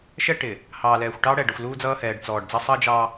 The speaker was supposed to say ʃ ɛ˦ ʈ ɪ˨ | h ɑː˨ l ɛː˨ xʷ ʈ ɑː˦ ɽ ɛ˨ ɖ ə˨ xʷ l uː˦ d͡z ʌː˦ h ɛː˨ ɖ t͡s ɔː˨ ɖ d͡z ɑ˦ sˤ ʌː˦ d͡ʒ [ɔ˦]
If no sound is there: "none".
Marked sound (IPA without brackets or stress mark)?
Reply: ɑ˦